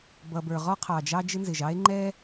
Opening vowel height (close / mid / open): mid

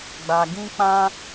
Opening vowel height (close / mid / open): open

